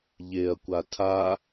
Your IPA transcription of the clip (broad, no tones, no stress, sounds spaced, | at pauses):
ʎ e ɐ̯ kʷ a tʰ a